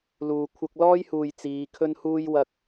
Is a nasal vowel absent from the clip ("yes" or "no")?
yes